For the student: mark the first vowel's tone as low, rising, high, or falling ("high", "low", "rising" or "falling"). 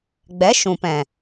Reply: rising